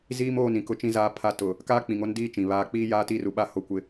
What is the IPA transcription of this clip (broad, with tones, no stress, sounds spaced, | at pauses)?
z iː˦ m oː˦˨ n ĩ˨ k ʊ˦ t͡ʃ ĩ˦ z aː˦ pʰ a˦ t ʊ˨ | k aː˦ k͡p ĩ˨ ŋ o˦ n d iː˦ t͡ʃ ĩ˨ β aː˨ k͡p iː˦ j aː˦ t iː˦ r u˨ ɓ a˦ h o˦ kʷ ɪ˦